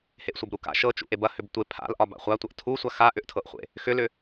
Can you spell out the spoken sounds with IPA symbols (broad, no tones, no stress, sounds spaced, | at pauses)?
h e ʔ sʷ ɐ b ɾ u k a̰ ʃ ɤ t͡ʃ ṵ ʔ e b ɐ h ʏ b tʷ e pʰ a̰ l ʔ ɒ b a̰ χʷ a tʷ ɐ ʔ tʰ u sʷ a x a ʔ ʏ ʔ tʰ ɤ ʔ χʷ ḛ | x ʏ l ʏ